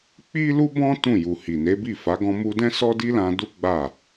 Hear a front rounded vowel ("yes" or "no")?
no